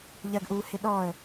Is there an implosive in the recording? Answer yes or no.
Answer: yes